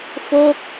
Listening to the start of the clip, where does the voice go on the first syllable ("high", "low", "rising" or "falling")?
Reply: falling